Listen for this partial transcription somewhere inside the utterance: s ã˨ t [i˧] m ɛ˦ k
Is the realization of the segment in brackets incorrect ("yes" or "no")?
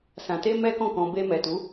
yes